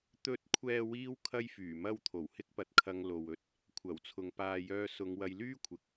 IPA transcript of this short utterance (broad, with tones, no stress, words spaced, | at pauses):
t̪ɵ˨˥t̚kʷʰɛː˨ wiː˥w kʰɐ˥jfyː˨˩mɐ˥w t̪ʰo˨˩whɪ˥k̚pɐ˧t̚kʰɐ˧ŋ lo˨wɵ˧t̚ | kʷʰɐ˨˩wt͡sʰʊ˨˧ŋ paː˨jœː˧sʊ˨˧ŋ wɐ˧jlyː˥kʷʰɪ˨˥k̚